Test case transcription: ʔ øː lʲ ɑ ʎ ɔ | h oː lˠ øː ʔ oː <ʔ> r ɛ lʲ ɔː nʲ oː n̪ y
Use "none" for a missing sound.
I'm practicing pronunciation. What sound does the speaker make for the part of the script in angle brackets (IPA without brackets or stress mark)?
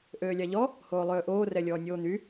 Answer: none